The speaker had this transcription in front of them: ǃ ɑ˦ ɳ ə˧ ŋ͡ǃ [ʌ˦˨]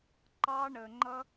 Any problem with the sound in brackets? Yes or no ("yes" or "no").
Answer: yes